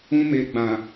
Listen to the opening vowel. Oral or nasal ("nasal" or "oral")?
nasal